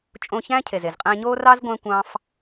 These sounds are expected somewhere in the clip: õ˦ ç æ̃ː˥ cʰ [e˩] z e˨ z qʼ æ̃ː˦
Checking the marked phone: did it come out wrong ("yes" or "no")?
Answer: yes